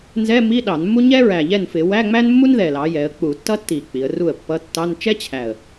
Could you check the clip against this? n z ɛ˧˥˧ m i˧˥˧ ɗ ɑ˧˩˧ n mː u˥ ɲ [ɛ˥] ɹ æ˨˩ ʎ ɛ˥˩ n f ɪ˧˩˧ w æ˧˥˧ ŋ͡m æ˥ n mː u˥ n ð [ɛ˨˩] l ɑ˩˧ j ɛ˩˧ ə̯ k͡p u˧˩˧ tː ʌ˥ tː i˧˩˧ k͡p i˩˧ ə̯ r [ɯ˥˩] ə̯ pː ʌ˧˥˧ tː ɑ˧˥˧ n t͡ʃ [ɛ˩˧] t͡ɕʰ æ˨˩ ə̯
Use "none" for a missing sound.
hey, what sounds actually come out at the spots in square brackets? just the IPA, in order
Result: ɛ˥, ɛ˨˩, u˥˩, ɛ˥

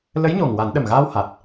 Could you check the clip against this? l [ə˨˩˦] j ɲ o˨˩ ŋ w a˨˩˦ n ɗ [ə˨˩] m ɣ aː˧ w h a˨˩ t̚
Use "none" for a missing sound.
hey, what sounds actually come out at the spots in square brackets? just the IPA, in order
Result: ə˧˥, ə˨˩

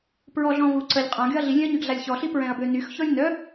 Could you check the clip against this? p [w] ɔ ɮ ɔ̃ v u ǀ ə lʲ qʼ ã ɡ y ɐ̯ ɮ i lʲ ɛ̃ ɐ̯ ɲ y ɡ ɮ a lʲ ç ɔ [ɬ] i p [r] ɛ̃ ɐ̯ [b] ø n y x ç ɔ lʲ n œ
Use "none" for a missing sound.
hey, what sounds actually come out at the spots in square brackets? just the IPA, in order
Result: ɹ, ɬ, ɹ, b

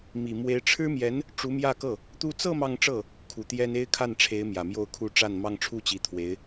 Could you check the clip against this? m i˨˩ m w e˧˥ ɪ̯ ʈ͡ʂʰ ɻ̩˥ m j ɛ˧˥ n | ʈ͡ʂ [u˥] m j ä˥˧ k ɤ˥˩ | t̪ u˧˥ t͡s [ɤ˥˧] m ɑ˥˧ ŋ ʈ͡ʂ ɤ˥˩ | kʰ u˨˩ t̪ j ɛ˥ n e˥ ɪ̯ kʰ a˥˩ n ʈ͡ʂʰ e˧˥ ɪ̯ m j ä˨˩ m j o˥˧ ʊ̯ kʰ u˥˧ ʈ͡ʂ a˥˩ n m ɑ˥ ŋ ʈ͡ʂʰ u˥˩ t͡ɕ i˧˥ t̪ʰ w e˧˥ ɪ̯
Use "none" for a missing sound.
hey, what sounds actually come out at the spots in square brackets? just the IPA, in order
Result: u˧˥, ɤ˥˧

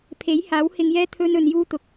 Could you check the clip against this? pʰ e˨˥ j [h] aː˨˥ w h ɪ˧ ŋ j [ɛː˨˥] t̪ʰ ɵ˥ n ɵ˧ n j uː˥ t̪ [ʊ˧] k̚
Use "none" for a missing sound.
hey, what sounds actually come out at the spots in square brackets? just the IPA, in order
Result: h, ɛː˥, ʊ˧

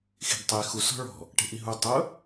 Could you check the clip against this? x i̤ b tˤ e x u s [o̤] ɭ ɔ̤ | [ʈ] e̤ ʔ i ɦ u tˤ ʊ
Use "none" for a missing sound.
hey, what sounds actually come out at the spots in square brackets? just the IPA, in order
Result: ɔ̤, ʈ

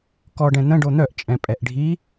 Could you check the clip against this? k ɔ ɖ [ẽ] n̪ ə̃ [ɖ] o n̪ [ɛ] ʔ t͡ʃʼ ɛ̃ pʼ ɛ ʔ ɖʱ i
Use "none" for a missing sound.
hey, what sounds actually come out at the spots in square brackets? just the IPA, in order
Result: ɛ̃, ɖ, œ

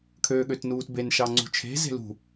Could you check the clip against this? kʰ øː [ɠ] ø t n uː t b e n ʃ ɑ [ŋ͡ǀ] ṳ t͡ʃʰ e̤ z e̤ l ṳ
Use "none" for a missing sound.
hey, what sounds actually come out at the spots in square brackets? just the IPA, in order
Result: ɠ, ŋ͡ǀ

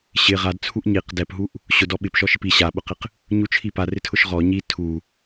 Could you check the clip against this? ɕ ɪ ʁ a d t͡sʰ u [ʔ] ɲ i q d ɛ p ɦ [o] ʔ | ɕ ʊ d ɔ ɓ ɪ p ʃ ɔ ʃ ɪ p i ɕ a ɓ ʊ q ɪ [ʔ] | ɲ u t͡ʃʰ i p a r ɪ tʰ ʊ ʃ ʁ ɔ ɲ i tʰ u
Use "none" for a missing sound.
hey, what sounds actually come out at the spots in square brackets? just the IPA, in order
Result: ʔ, u, q

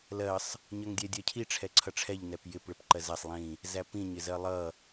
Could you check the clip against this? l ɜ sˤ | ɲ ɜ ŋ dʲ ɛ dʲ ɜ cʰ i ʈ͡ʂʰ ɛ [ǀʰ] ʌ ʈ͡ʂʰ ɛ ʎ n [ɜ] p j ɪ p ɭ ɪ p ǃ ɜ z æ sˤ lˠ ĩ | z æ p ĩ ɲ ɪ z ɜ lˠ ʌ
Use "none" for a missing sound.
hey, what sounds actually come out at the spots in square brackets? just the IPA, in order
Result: ǀʰ, ɛ

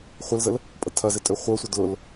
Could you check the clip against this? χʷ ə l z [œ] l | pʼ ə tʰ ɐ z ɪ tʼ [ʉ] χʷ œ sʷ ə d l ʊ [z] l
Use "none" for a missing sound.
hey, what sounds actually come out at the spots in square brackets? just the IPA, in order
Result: ə, ø, none

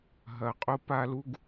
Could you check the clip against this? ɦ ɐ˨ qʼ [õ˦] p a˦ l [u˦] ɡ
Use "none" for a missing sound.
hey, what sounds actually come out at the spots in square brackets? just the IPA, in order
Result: o˦, u˦

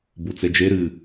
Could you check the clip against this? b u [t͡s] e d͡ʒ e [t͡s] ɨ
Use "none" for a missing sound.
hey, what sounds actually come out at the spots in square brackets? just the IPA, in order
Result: t͡s, ɾ

